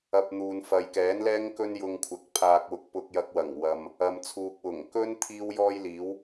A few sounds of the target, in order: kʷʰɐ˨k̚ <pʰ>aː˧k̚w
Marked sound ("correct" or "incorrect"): correct